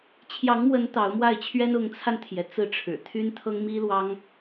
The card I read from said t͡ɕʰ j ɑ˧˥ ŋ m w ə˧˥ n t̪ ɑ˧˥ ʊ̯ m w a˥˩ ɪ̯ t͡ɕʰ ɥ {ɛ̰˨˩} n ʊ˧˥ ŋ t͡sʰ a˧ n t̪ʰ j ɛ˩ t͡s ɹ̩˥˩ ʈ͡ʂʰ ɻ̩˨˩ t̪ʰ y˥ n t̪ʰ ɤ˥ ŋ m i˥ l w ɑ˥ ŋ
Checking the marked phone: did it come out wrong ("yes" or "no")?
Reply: yes